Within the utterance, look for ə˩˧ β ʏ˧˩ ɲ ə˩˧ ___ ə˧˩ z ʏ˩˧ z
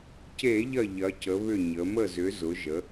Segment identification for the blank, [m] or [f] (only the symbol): m